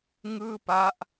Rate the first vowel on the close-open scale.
close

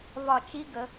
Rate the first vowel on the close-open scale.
open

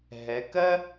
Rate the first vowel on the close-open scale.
mid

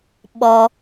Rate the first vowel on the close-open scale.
mid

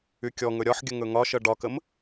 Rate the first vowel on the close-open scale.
close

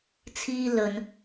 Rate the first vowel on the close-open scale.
close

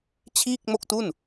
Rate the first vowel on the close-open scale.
close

